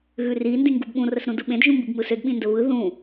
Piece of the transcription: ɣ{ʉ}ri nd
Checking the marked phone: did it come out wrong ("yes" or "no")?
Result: no